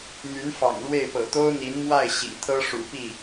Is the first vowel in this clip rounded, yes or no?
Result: yes